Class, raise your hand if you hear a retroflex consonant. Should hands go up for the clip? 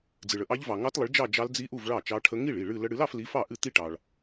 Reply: yes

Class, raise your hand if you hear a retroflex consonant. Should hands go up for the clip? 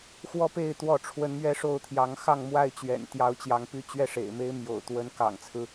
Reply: yes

